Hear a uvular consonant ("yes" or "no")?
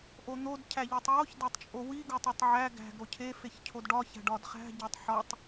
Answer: yes